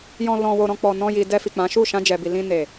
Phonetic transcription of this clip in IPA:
j ɔ̃˧ l ɔ̃˧ w o˧ ɾ ɔ̃˧ k͡p ɔ˨ n ɔ̃˧ j i˨ d ɛ˧ f i˨ k͡p ã˨˦ ʃ u˦˨ ʃ ã˧ d͡ʒ ɛ˨ b i˨ l ĩ˧ n e˨

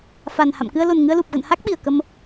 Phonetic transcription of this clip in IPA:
f a˨˩ n h a̰˧˨ m k ɨ˧ ə̯ l o˨˩ n ŋ ɨ˧ ə̯ l u˨˩ p̚ ɣ ə̰˧˨ n h a˦˥ k̚ ɓ i˨˩ ə̯ k ə˧ m

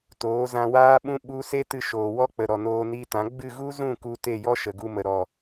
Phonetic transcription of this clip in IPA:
t oː˨˦ z ã˧ w aː˦ ɓ ũ˦ ɓ u˦ s e˦ t ɨ˧ ʃ oː˨ w ɔ˦ k͡p ə˨ ɾ ɔ˨ n oː˧ n i˧ t ã˨˦ ɡ͡b ɨ˦˨ ɣ u˦ z ũ˦˨ k u˧ t e˦˨ j ɔ˦ ʃ ə˨ ɡ u˧ m ə˨ ɾ ɔ˨

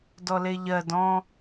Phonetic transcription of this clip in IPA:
d ɔ l e ʎ ɜ d ɔ̃

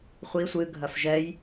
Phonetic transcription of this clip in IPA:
χʷ i sʷ ɨ ɡʱ ɐ f ʒ ɛ j

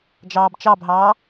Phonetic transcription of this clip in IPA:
d͡ʒ ɑː b t͡ʃ ɑ b ɦ ɑː

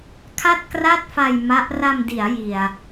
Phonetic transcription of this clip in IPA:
kʰ a˥˩ t̚ k r a˥˩ t̚ f a˧ j m a˦˥ ʔ r a˧ m d i˩˦ a̯ j i˨˩ a̯

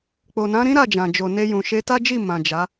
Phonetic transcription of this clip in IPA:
k͡p o˨ n ã˨˦ ɾ ĩ˦ ɾ a˦˨ d͡ʒ ã˨ d͡ʒ o˨ n e˧ j ũ˨ ʃ e˧ t a˦ d͡ʒ i˦˨ m ã˨ d͡ʒ a˨˦

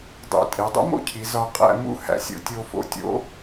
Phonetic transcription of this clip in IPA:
dˤ ḛ˧ tʼ e˩˧ dˤ ṵ˥ m o̰˥ cʰ i˩˧ z ɒ˧ qʼ æ̰˥˧ m ṵ˥˧ h æ̰˧ sʲ o̰˧ tʲ o˧ f o̰˧ tʲ o̰˧

